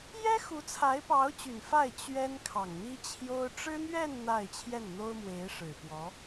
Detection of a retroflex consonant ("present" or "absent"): present